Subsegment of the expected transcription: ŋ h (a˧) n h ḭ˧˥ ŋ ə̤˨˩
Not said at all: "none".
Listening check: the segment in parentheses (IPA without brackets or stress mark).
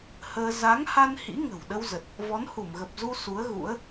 a˧